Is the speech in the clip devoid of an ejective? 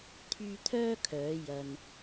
yes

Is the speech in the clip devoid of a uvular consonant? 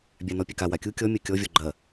yes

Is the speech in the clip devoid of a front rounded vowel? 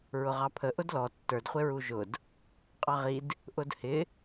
yes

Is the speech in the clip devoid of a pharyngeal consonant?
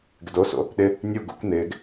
yes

